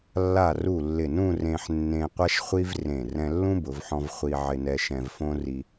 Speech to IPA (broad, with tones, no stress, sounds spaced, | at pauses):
lː a˧˩ r u˧˩ lː ɪ˧˩ n ũ˥˧ r ẽ˧ ħ nː ẽ˧ qʷ a˥ ʃ χʷ i˥ v r ẽ˧˩ r ɛ̃˧ lː ũ˥ b ʊ˩˧ v ħ ɔ̃˧ v χʷ i˧ ʕ ɪ˧ n ɛ˧ ʃ ɛ̃˧ v f õ˥ r i˧